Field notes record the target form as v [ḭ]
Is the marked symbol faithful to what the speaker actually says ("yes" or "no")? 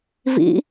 yes